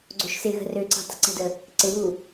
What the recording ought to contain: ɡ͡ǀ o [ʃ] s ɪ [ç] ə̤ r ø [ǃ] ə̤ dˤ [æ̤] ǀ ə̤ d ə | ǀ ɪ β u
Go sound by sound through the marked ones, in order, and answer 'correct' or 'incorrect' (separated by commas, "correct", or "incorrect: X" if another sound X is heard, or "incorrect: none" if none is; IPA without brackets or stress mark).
correct, incorrect: ɣ, incorrect: ǀ, incorrect: ə̤